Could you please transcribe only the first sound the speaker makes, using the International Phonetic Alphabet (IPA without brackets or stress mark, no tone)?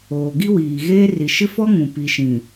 oː